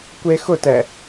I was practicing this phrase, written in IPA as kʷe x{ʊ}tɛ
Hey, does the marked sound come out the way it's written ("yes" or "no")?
yes